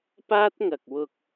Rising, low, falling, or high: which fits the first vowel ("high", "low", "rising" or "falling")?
high